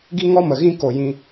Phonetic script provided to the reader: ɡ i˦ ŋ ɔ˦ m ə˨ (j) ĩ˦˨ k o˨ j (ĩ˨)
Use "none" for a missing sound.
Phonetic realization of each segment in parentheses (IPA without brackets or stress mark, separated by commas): ɣ, ĩ˧